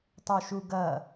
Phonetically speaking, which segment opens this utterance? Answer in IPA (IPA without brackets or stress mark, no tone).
tˤ